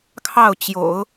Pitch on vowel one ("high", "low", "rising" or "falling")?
falling